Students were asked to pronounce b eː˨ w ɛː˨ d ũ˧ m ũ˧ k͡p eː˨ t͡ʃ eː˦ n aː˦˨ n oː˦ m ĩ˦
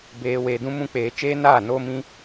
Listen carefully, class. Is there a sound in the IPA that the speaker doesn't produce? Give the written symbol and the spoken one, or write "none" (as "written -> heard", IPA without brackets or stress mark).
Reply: ɛː˨ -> eː˨